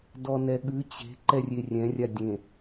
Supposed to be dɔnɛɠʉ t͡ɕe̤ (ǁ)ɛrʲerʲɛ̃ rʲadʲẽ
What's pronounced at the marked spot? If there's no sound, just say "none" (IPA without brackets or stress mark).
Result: ǃ